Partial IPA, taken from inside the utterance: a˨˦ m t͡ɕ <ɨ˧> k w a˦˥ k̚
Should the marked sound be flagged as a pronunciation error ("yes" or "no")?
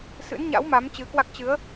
yes